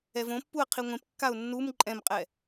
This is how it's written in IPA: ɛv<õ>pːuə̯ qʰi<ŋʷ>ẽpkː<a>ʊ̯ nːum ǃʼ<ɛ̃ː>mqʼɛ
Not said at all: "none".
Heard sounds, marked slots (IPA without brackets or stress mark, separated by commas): õ, ŋʷ, a, ɛ̃